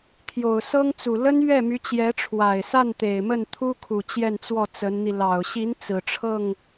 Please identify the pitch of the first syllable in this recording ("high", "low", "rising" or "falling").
low